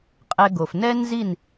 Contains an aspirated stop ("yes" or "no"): no